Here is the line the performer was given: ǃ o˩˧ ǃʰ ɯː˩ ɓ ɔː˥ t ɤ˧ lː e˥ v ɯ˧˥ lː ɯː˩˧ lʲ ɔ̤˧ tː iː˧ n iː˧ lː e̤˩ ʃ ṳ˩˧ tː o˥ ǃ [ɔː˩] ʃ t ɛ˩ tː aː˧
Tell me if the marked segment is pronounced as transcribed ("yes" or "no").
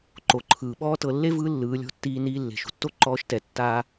no